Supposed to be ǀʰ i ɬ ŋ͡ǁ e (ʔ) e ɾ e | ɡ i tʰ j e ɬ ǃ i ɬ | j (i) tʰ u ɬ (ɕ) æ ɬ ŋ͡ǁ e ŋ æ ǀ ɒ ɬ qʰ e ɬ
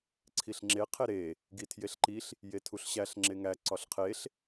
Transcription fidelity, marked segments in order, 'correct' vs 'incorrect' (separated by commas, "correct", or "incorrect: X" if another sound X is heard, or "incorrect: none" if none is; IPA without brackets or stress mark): incorrect: qʰ, incorrect: e, correct